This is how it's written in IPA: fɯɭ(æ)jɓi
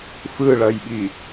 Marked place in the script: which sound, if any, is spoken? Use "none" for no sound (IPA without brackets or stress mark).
ɐ